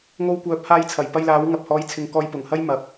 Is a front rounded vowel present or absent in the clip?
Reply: present